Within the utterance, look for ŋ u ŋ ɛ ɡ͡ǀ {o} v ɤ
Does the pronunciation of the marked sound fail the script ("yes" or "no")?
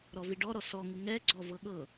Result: yes